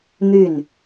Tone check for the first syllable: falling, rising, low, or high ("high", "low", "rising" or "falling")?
falling